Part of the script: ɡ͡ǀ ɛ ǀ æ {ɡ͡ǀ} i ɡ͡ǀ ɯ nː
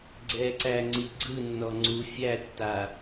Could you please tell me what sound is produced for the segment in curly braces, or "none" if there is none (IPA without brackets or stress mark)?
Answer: ŋ͡ǀ